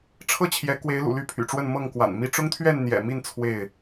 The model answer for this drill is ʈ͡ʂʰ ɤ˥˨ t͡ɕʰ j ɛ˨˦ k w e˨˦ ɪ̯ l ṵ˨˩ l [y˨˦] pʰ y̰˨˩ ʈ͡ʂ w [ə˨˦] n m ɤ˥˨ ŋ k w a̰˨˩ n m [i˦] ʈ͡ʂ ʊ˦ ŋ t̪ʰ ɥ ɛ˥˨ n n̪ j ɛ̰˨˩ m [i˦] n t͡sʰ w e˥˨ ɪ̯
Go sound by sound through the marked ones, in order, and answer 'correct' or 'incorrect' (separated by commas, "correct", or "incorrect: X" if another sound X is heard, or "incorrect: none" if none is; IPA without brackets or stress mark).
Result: incorrect: y˥˨, incorrect: ə˥˨, correct, incorrect: i˥˨